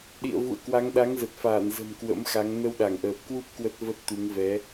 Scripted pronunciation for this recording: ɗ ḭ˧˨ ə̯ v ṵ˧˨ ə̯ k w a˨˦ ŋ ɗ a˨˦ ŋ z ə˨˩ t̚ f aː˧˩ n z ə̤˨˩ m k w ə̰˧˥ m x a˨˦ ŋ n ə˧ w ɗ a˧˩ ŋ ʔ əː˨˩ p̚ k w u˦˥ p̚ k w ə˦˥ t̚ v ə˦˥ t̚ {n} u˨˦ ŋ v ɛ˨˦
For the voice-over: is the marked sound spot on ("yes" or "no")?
no